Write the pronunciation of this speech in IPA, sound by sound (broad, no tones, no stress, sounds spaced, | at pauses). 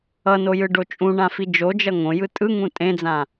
ʌ n o j ɯ ɖ o t͡ʃʼ ũ ɳ ã f i d͡ʒ o d͡ʒ ʌ ŋ õ j ɯ tʼ ɯ ŋ ũ tʼ ẽ d͡z ã